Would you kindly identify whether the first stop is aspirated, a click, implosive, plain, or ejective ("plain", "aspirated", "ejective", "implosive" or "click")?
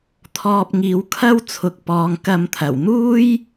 aspirated